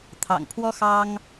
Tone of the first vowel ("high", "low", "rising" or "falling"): low